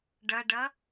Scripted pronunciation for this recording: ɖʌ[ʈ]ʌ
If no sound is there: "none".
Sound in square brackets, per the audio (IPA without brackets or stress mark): ɖ